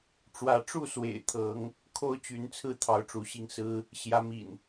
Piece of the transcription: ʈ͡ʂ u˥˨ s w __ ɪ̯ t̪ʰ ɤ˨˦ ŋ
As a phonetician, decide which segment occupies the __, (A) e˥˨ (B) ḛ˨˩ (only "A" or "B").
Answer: B